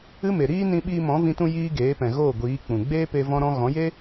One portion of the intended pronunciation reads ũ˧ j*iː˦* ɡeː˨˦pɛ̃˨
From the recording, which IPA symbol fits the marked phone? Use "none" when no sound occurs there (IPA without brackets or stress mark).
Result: iː˦